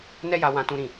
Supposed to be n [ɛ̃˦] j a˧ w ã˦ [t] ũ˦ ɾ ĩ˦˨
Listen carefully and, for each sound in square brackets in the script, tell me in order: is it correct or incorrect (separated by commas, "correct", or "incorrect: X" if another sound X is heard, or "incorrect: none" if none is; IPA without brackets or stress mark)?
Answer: incorrect: ɛ˦, correct